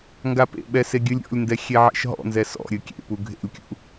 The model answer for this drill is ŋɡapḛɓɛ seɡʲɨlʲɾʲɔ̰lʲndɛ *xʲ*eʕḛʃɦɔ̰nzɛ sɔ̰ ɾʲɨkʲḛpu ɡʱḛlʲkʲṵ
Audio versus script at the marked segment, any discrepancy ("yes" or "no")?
no